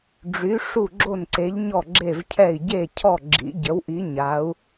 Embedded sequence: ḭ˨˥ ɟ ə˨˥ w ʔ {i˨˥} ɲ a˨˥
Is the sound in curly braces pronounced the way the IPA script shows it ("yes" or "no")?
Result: yes